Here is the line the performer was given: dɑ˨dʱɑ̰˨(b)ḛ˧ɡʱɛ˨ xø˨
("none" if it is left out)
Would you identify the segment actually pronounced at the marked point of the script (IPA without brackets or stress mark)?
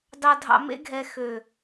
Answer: m